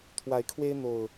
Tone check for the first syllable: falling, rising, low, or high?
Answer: rising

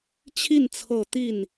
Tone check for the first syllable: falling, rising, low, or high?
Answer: falling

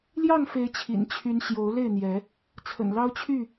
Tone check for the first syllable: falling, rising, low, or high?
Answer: falling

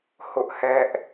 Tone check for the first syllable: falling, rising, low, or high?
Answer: high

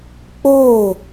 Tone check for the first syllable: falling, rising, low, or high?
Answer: falling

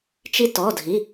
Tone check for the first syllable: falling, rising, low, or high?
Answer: high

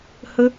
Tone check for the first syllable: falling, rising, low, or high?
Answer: high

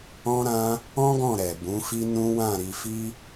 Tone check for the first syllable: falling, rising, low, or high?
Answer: high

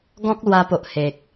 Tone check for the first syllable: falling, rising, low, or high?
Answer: high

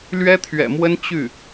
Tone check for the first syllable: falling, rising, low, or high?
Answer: high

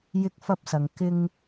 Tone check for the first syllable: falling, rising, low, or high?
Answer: high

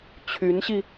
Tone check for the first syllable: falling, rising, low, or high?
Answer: rising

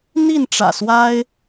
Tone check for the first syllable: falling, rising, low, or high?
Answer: falling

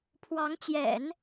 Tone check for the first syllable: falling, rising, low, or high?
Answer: rising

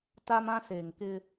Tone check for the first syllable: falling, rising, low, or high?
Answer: high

